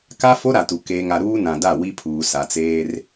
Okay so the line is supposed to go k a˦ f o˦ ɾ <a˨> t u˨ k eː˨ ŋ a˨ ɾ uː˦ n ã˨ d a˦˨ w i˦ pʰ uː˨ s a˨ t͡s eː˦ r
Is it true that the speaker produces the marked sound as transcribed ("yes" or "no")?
yes